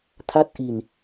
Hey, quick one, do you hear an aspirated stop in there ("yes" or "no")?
yes